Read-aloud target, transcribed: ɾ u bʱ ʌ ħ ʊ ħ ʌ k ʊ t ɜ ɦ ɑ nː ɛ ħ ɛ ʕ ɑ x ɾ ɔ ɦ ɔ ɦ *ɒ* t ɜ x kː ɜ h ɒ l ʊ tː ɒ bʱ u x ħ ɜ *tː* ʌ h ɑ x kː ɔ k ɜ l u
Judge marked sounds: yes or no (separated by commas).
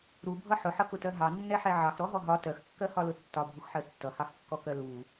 yes, yes